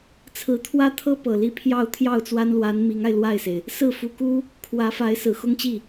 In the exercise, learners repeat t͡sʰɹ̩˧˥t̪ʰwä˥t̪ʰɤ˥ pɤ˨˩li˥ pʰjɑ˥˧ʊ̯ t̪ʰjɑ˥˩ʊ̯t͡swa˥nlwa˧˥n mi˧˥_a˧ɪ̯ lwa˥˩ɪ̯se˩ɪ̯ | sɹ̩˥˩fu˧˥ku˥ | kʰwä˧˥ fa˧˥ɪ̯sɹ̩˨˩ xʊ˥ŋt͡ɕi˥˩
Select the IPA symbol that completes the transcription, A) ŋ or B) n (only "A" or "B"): A